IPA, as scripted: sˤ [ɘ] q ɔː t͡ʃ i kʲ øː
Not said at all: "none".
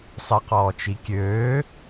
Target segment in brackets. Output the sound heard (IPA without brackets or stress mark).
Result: ɛ